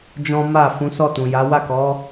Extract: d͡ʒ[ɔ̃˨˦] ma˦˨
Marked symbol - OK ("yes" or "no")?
no